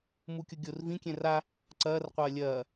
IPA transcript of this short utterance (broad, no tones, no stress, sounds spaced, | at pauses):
m u kʲ o ɡʲ o r v ĩ kʲ ɛ̃ r a | ǀ ɐː r qʷ ɐː lʲ ɐː